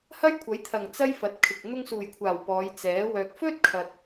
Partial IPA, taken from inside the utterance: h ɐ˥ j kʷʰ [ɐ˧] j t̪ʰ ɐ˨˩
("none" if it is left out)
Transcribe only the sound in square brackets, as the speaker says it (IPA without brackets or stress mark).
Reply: ɐ˨˥